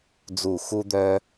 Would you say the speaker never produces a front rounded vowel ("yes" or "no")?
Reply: no